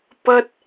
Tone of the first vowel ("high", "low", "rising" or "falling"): high